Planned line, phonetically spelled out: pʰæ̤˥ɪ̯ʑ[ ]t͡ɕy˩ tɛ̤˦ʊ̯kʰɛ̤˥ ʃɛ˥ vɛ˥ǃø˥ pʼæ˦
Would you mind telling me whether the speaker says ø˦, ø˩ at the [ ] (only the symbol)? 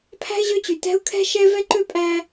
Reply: ø˦